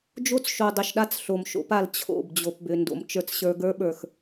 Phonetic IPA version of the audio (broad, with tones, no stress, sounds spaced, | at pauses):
d͡ʒ o˦ t͡s ʃ o˨ dˤ ʏ˨ ʃ ɗ a˦ t͡s ɬ o˨ m ʃ o̰˦ p a˨ l t͡ɕʰ o̰˦˨ b d͡ʑ o˨ p b ʏ˨ n d o̰˨ m t͡ʃ ə˞˦ t͡s ɕ ə˞˦ ɡ ə˞˦ ɓ ə˞˨ x